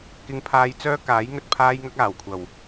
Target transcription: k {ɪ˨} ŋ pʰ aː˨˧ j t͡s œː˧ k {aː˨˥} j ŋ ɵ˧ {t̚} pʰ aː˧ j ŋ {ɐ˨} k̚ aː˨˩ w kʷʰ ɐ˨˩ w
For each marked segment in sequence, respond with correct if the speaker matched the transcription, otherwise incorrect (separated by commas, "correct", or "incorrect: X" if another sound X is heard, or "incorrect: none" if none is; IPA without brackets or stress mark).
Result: incorrect: ɪ˨˧, correct, correct, incorrect: ɐ˧